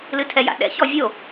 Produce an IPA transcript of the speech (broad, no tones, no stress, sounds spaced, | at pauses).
l ɨ tʰ ɛ j a̰ ɗ ɛ̰ ç ɔ vʲ o